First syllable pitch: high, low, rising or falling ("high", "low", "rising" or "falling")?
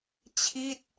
falling